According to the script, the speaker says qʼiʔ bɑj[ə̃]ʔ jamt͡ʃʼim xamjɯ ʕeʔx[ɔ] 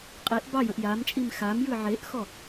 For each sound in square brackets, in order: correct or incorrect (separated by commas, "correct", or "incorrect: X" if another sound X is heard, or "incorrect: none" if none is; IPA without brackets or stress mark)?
correct, correct